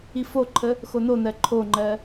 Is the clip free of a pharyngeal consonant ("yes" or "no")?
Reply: yes